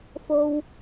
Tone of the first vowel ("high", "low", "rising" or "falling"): low